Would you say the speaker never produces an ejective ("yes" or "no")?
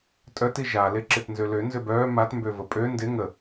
no